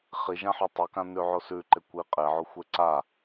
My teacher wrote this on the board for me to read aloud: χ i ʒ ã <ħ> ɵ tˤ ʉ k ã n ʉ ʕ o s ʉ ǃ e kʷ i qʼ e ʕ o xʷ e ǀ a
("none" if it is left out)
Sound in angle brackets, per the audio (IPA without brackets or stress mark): ħ